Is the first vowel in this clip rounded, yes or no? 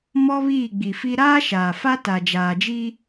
yes